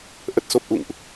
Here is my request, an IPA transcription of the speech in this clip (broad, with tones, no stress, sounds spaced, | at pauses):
ʔ ə˨˩ t̚ s o˨˩ p̚ ʔ ṵ˧˨ ŋ ʔ